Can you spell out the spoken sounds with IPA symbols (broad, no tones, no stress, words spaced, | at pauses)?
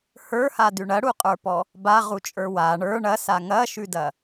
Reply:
hə˞hadʉ ɳɐɽuqʼə˞pɔ | baʁut͡ʃʼə˞ wa ɳə˞ ɳɐsa ŋɐʃʉdɐ